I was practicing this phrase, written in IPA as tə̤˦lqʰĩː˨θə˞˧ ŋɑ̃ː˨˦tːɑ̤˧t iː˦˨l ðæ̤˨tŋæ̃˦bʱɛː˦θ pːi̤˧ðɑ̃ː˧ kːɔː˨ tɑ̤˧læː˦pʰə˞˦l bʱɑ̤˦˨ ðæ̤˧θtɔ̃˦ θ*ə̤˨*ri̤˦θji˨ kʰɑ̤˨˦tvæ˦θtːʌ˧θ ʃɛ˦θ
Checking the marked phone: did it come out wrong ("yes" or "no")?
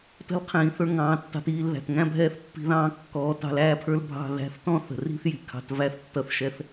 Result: no